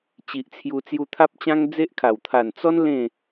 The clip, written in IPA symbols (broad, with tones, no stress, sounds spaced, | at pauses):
t͡ɕ i˨ ʔ t͡sʰ j u˧ t͡s j u˧ t̪ʰ a˦ p̚ t͡ɕ ã˦ ŋ d͡z e˦ ʔ kʰ a˨˩ w t̪ʰ a˨˩ n t͡s ɔ˦ n l ẽ˥˧